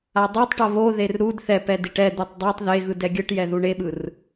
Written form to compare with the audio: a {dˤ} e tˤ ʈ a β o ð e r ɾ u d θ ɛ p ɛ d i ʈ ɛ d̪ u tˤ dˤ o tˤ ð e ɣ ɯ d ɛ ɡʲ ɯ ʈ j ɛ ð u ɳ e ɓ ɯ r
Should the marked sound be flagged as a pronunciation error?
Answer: no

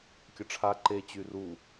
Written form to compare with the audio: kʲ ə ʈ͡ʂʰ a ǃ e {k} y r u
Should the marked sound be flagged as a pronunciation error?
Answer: yes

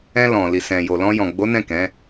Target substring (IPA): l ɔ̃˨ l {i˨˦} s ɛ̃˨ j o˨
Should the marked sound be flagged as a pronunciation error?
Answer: yes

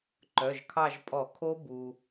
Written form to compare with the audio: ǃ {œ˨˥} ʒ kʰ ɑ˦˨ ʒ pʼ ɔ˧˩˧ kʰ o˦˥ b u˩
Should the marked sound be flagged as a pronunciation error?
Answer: yes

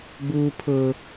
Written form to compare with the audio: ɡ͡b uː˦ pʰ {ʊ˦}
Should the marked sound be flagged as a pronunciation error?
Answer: no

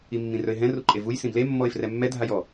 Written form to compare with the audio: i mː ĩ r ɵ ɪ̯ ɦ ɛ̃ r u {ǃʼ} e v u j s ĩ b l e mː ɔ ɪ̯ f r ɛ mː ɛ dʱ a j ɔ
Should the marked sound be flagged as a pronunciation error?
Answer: no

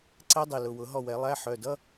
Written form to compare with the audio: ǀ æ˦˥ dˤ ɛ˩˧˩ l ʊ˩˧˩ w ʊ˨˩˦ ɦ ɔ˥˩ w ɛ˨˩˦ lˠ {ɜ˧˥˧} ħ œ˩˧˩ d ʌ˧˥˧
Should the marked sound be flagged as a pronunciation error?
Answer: yes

